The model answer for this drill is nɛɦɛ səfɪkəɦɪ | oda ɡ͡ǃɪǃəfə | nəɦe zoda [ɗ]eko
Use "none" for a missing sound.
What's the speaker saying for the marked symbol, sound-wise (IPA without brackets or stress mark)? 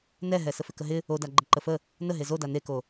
n